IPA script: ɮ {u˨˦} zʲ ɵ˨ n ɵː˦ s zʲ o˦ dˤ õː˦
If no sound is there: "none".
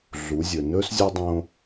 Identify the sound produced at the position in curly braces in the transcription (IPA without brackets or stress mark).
u˨˦